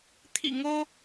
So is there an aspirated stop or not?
yes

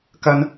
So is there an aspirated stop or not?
no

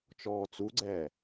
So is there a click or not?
yes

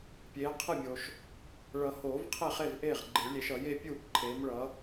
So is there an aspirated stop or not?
yes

